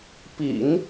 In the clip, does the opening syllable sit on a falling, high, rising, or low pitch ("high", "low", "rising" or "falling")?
low